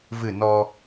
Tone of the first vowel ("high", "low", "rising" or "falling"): falling